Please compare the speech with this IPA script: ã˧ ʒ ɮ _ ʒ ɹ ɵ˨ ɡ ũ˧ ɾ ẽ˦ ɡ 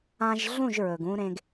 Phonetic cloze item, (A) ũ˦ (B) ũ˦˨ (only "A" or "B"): B